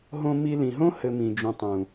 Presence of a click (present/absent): absent